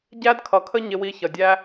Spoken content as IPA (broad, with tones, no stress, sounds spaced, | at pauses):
ɟ æ˧ d kʰ ʌ˨ kʰ ə˧ ɲ ɪ˧ w i˧ ç ʌ˨ dʲ æ˦